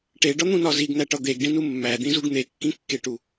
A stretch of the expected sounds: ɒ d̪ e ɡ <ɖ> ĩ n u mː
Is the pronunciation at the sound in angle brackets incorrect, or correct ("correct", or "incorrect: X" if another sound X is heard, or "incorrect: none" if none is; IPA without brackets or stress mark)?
correct